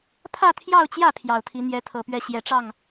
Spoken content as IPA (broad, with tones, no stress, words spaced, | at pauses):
pʰä˥˧t̪ʰjɑ˥˧ʊ̯t͡ɕjä˥˩ pʰjɑ˨˩ʊ̯t̪ʰi˧˥ n̪jɛ˧˥t̪ʰɤ˨˩pɥɛ˥˩ ɕjɛ˨˩ʈ͡ʂɑ˥˩ŋ